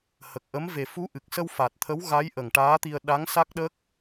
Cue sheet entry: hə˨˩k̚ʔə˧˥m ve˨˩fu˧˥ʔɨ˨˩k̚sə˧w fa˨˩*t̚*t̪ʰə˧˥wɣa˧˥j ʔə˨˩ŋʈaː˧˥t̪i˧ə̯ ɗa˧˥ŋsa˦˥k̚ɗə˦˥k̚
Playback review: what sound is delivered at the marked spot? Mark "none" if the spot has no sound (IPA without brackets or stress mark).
t̚